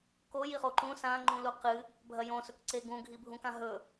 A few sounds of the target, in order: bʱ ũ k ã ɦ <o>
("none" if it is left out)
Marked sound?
ɵ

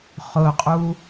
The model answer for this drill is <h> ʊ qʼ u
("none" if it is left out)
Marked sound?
χ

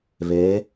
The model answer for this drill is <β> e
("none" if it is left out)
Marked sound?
β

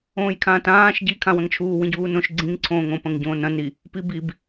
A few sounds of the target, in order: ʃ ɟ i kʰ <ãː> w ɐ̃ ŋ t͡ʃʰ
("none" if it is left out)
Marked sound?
ã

